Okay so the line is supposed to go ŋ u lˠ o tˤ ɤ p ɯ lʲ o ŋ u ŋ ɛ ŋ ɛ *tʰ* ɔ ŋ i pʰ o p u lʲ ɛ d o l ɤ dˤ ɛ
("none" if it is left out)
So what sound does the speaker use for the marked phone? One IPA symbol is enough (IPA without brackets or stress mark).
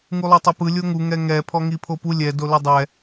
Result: pʰ